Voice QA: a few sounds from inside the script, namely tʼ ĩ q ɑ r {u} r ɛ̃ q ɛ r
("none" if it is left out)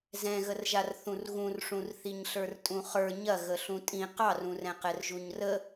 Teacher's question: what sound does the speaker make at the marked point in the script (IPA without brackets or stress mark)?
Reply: ũ